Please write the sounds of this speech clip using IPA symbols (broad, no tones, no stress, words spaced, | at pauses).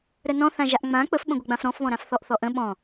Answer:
ɾənɔ̃ θãʒaʔŋ͡mã k͡pəfɓə̃ ɡʷɘɡ͡bãfɾɔ̃fβɔ̃ ɾãfθɔʔθɔʔə̃ ɓɔ̃